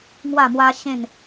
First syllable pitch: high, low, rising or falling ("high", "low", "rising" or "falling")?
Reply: falling